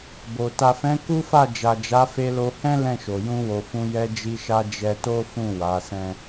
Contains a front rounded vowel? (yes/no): no